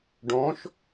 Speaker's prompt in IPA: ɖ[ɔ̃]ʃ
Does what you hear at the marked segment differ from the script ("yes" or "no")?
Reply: no